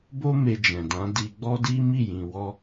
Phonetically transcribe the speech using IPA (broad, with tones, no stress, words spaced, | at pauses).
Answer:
bo˦ me˧d͡ʒɛ̃˨dã˨˦ di˧ɡ͡bɔ˦ di˦mi˦˨jĩ˨ wɔ˧